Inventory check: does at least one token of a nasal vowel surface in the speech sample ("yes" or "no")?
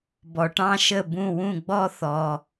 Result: yes